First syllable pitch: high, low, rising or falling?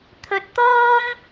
low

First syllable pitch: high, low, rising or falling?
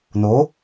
rising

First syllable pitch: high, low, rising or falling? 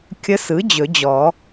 rising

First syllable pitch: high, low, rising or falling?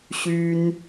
high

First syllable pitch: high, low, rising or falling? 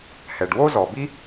low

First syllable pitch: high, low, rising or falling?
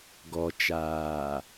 low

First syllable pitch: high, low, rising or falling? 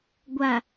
low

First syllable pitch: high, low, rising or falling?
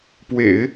low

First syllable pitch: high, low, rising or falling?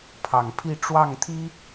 low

